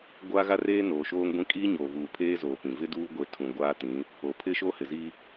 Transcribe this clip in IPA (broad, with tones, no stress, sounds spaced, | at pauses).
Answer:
ɡʷ aː˦ ɣ a˦ r eː˦ n oː˨ ʃ oː˦ ŋ ɡʷ ĩ˦ kʼ iː˦ ɲ oː˨ v uː˨ pʰ eː˦ z oː˨ p ĩ˨ v ɪ˦ d uː˦ ɡʷ e˨˦ tʰ ũ˨ ɡʷ aː˦ t ĩ˨˦ | o˨ pʰ ɪ˦ ʃ o˦ h ɪ˨ z iː˦